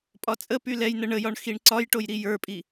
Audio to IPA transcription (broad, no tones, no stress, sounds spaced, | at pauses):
pʼ ɒ t͡sʼ ə p y l ɛ j n ə ɳ ə j ɒ ɳ x i ɳ ǀ ɒ j ʈ o j ɾ i j ə˞ pʼ i